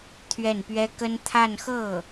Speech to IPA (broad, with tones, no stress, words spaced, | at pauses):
t̪ʰɥɛ˥˩npɥɛ˥ kə˥n t̪ʰa˥˧nxɤ˥˩